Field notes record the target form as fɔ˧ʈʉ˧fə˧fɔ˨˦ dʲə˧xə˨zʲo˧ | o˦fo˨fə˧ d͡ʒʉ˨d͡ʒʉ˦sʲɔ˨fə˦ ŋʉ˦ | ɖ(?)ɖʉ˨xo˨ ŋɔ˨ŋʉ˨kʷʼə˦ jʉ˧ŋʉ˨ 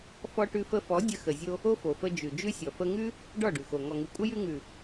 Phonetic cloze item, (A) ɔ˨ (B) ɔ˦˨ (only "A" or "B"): B